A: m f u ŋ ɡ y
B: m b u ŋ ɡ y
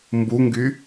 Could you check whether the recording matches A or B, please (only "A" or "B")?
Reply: B